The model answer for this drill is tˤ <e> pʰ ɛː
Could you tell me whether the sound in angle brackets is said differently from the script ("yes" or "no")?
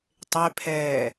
no